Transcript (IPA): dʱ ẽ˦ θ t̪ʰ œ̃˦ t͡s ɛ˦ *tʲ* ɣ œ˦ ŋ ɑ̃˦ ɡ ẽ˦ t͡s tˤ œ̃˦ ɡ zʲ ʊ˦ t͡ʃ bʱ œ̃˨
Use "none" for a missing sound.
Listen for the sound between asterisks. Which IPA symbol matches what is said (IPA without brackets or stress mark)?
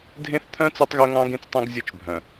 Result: tˤ